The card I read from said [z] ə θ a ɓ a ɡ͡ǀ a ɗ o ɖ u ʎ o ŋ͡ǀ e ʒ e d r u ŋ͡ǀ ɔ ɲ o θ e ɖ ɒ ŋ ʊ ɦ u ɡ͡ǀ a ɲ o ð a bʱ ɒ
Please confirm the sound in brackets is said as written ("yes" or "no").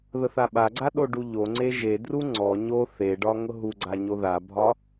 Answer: no